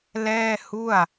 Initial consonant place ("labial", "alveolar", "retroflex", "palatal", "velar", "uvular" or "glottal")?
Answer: alveolar